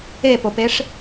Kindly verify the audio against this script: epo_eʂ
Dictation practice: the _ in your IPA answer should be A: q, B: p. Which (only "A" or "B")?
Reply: B